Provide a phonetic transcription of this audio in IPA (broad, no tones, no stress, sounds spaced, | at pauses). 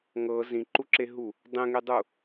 ŋ ɤ z ĩ ǃ u ǁ e ɦ u | dˤ ẽ ŋ e dˤ u